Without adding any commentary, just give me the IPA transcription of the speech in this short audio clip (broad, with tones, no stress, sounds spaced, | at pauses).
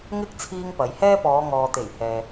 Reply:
ŋ ɪ˥ k̚ t͡sʰ iː˥ ŋ p ɐ˨˧ j h ɛː˥ p ɔː˨˧ ŋ ɔː˨ t̪ e˨˩ j h ɛː˨